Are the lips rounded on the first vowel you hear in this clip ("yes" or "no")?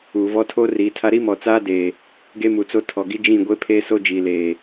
yes